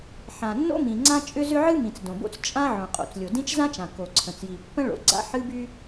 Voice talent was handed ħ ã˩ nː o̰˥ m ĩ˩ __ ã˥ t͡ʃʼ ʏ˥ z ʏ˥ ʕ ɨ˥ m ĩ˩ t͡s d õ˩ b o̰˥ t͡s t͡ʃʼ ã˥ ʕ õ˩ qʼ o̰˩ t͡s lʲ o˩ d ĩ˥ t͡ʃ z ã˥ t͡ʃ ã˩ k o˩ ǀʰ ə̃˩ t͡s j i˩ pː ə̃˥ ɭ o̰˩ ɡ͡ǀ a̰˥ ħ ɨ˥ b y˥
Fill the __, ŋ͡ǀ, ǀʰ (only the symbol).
ŋ͡ǀ